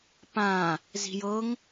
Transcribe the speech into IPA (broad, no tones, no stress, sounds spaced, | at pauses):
p ã | z i̤ j ɤ ŋ